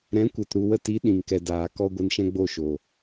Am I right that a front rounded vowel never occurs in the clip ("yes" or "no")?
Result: yes